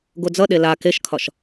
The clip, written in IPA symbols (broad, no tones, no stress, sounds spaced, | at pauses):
ɡ o d͡z ʌ ɗ e l a k e ʃ kʰ ɒ ʃ